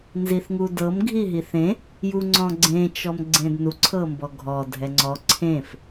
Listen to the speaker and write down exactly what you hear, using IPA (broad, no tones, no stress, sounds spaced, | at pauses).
n z i θ ŋ u d ɤ m ɡʱ i ɦ i θ ẽ | j u ŋ͡ǀ ɔ̃ ɡ͡ǀ ẽ t͡ʃ ɔ m ɡ͡ǀ ẽ d n u ǀʰ ɤ m b ɔ ɡʱ ɔ dʱ ɛ ŋ͡ǀ ɔ ǀʰ ẽ f